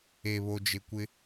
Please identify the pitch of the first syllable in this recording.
low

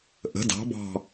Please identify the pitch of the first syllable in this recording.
rising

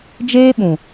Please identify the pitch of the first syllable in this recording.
high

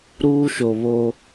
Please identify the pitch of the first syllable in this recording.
high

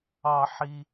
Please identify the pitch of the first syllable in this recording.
low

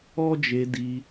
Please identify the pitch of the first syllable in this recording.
high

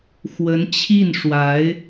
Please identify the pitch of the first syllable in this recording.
rising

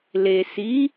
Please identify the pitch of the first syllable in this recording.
low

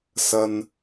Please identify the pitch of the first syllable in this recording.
high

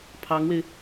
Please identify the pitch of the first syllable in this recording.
rising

